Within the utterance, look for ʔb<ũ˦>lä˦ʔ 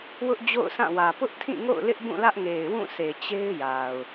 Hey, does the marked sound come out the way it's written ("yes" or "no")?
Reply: no